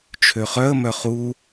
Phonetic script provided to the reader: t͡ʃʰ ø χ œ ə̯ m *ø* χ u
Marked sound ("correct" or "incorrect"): incorrect